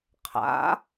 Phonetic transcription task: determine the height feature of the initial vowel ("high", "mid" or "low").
low